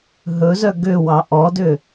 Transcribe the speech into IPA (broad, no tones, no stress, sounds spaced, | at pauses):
ɦ ɵ z œ ɡ ø w ɑ ʔ ɔ d ø